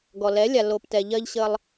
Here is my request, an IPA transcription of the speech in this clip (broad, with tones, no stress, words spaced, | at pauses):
ɡɔ˨lɛ˨˦lʲa˨ lo˨p tɛ˨ʎɜ˧ʎɕə˧lˠ